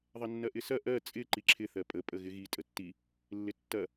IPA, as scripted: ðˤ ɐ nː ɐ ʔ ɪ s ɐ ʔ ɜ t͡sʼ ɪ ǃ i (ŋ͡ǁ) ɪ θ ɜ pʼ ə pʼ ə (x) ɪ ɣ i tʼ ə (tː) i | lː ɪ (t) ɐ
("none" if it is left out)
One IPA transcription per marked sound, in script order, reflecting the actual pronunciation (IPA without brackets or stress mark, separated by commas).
ǁʰ, ɣ, tː, tː